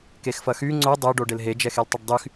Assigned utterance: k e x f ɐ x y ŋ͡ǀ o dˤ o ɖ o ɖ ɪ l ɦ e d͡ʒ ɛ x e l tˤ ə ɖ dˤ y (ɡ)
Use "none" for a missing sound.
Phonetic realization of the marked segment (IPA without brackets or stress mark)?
x